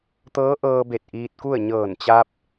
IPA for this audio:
t̪ ɤː˧˥ ʔ ɤː˧ b e˧˩ t̚ ʔ iː˧ t̚ k u˥˨ ə̯ ɲ ɤː˧˩ n t͡ɕ a˧ p̚

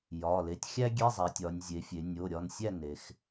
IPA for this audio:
j ɒ˩˧˩ l e˩˧˩ tʲ xʲ æ˥ ɡʲ e˧˥˧ zˤ æ˩˧ tʲ ɒ˩˧ nʲ zʲ e˩˧ fʲ e˩˧ nʲ o˩˧˩ ɾʲ ɒ˩˧˩ n sʲ æ˥˨ n e˩˧ x

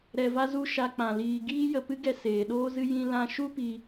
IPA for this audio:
ɾ ɛ˧ v a˦ z u˦ ʃ a˦ k͡p ã˧ l iː˧ ɡ iː˦ j ə˧ p ɨ˦ ɡ ɛ˧ s eː˨ ɗ oː˦ z ɨ˦ j ĩ˦ l ã˦ ʃ u˦ p i˧

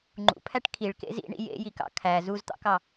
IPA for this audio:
ŋ͡ǃ ṵ pʰ æ ʈ kʰ i ɭ k ḛ z ḭ ɳ ḭ j ḛ j i k ɑ̰ kʰ æ z u z t̪ ɑ̰ k ɑ

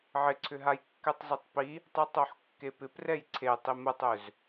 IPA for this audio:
ʕ ɪ ǀʰ ʏ ɦ a j kː ɛ tˤ z ʏ tˤ p i | tˤ ɛ tˤ o ħ kː e p ɪ p r ɛ j ǀʰ e tˤ i m ə tˤ ø z

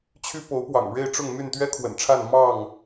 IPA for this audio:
t͡ɕʰ y˦ p o˨˦ ʊ̯ p w ɑ̰˨˩ ŋ ɻ e˥˨ ɪ̯ ʈ͡ʂ ʊ˥˨ ŋ m y˥˨ n t̪ ɥ ɛ˦ kʰ w ə̰˨˩ n ʈ͡ʂʰ a˥˨ n m ɑ˥˨ ŋ

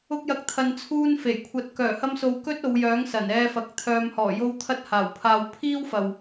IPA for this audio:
ʊ˧ k̚ j ɐ˨˥ k̚ t̪ʰ ɐ˨ n t͡sʰ uː˧ n f e˨˩ j kʷʰ ɐ˧ t̚ k œː˨˩ h ɐ˧ m s o˨ w k ɵ˥ t̚ o˨˧ w j œː˨˥ ŋ s ɐ˨˩ n ɛː˧ f ɐ˨˥ k̚ t̪ʰ œː˨ m h ɔː˨˩ j o˧ w t̪ʰ ɐ˧ t̚ h aː˨˩ w pʰ aː˨ w pʰ iː˥ w f ɐ˨ w

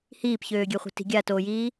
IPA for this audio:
h iː p ç øː ɡʲ ø χʷ i̤ t i̤ ɡʲ a t oː j iː

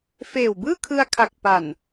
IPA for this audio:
f eː˨˩ w b ɯː˥˩ kʰ ɯ˧ a̯ kʰ a˨˩ k̚ p a˨˩ n

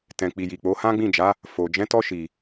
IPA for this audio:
t ɛ̃˨ k͡p i˨ j i˨ k͡p o˨˦ h ã˦ ɡ͡b ĩ˦˨ d͡ʒ a˨˦ | f o˨ d͡ʒ ɛ̃˨˦ t ɔ˧ ʃ i˨

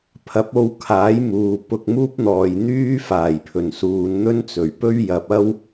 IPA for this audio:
pʰ ɐ˨˥ p̚ o˧ w kʰ aː˨˥ j m uː˨ p ʊ˧ k̚ m uː˥ p̚ n̪ ɔː˨ j n̪ yː˥ f aː˨˩ j pʰ ɵ˨˩ n s uː˨˧ n n̪ ɵ˥ n t͡s ɵ˨˩ ɥ p ɵ˥ ɥ j ɐ˨ p̚ ɐ˥ w

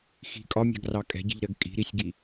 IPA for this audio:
x i̤ kʼ ɒ mʲ ɑ̤ ɡ r ɑ kʼ ɛ̤ ɟ i̤ ʎ ɾ ɜ ɡ kʼ i̤ ɾ i sʲ ɡ i

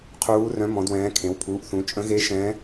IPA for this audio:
qʰ uː˦˥ r œ̃˦˥ m ɔ̃˦˥ d w ɛ̃ː˦˥ kʰ ẽ˨˦ w pʰ uː˨˦ ʔ θ ũ˨˦ t͡ʃʼ ə̃˦˥ ɣ e˦˥ ʃ ɛ̃ː˦˥

